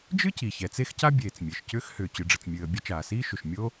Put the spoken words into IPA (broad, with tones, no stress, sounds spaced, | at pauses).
d͡ʒ ɨ˥ c i˩ ç ɛ˩ t͡s e˥ x c a˥ bʲ eː˩ t͡s mʲ e˩ ʃ c ʏː˥ x h ʏː˩ t͡ɕ ɨ˩ ɖ͡ʐ ə˩ t͡s mʲ ɨː˩ ə̯ bʲ ə˥ t͡ʃ aː˩ s iː˥ ʃ ʏ˩ ʃ mʲ o˥